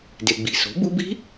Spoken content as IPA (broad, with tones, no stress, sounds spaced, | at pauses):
d e˨ ɡ͡b i̤˨ s o̤˩˥ b u˦˥ b i̤˦˥